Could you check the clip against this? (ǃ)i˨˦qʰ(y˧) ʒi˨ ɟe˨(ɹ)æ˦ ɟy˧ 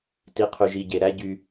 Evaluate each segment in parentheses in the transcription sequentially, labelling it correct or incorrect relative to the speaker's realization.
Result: incorrect: t, incorrect: y˨, incorrect: ɾ

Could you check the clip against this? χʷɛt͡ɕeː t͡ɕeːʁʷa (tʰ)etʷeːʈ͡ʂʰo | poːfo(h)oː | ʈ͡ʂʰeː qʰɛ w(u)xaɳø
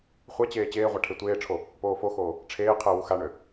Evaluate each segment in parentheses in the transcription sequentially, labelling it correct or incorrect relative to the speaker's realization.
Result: incorrect: ʈʰ, incorrect: x, correct

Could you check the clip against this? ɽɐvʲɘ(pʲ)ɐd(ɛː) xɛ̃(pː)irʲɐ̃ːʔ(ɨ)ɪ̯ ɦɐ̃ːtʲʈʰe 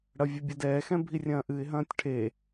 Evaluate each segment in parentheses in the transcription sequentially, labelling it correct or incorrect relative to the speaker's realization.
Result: incorrect: bʲ, correct, incorrect: bʱ, correct

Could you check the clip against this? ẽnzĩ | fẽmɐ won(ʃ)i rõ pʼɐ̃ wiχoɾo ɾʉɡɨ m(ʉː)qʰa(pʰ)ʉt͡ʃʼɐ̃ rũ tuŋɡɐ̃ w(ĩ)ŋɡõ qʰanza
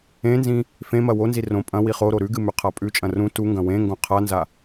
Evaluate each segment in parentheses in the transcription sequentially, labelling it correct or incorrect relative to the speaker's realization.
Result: incorrect: z, incorrect: ʉ, incorrect: pʼ, incorrect: ẽ

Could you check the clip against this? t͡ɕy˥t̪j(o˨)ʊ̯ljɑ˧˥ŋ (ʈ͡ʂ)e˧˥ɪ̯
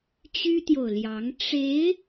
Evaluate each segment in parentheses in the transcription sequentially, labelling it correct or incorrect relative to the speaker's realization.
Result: correct, correct

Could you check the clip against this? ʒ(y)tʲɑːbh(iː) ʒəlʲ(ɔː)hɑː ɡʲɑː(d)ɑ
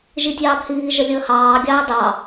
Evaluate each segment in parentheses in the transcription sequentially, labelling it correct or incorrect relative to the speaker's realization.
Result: incorrect: i, correct, incorrect: əː, correct

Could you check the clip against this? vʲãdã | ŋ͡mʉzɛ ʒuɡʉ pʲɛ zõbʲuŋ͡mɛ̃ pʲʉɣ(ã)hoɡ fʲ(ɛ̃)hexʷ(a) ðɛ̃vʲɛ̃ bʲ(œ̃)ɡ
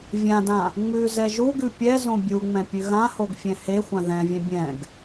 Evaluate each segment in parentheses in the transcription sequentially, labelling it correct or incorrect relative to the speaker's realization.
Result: correct, correct, incorrect: ã, incorrect: ɛ̃

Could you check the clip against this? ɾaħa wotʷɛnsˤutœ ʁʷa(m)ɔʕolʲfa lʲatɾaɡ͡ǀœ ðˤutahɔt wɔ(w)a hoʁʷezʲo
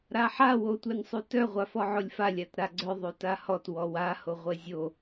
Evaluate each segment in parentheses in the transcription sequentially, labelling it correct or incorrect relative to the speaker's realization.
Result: incorrect: f, correct

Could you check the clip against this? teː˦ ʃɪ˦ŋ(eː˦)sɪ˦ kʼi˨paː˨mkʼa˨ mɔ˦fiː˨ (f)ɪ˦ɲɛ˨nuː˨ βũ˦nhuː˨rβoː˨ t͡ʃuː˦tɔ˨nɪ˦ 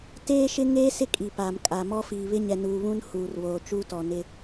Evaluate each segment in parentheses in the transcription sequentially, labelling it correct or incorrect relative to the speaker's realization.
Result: correct, incorrect: β

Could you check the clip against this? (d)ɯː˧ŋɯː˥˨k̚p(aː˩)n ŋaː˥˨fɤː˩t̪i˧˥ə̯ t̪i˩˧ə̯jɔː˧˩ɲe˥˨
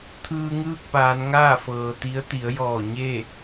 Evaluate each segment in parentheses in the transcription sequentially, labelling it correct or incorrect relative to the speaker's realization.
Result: incorrect: t̪ʰ, incorrect: aː˩˧

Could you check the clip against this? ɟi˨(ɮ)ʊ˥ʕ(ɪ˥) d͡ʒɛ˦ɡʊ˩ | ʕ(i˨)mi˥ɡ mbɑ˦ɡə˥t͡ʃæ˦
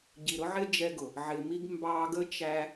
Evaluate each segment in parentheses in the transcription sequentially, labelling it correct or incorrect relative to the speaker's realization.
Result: incorrect: ɾ, correct, incorrect: ɪ˨

